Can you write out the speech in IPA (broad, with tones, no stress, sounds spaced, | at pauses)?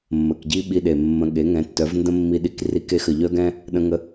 mː ə˨ k ɟ i˦ ɓ i˧ ɗ e˨ mː ə̃˨ ɠ e˨˦ ŋ ɛ̃˨˦ tː œ˨˦ v n d ə̃˦ mː i˧ ɗ i˧ k r i˧ k e˧ x ə˨ ʎ œ˦ ɡ ɛ̃˦ | ɗ ə̃˧ ŋ ə˧